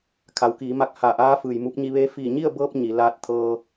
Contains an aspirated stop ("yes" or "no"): yes